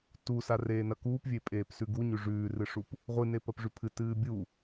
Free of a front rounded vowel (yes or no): yes